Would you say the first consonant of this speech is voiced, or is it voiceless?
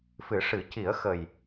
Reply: voiceless